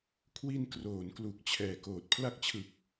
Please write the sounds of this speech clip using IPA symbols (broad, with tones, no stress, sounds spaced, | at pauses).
kʰ w i˧ n k r oː˩˦ n k l u˨˩ k̚ t͡ɕʰ ɛː˨˩ k oː˨˩ t̚ pʰ l a˦˥ k̚ t͡ɕʰ ɯ˨˩ k̚